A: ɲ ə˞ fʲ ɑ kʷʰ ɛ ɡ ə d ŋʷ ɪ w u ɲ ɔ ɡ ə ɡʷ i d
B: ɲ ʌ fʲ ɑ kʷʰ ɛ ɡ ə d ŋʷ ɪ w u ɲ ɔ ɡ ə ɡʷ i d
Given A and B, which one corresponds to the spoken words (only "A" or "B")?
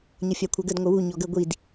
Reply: B